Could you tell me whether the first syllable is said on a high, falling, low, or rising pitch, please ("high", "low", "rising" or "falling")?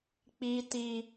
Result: high